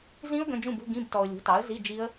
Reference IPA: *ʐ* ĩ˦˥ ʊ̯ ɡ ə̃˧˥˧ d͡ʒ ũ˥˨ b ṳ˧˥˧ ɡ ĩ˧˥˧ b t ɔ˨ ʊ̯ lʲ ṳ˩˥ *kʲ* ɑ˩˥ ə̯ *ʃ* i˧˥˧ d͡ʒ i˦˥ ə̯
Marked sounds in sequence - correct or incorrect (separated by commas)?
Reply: incorrect, incorrect, incorrect